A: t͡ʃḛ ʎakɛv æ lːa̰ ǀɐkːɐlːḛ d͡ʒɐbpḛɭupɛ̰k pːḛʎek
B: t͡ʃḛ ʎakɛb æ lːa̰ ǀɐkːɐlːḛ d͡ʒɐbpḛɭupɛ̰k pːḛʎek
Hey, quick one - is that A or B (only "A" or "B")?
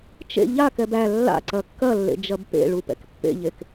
B